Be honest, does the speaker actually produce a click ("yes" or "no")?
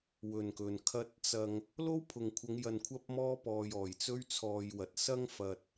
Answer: no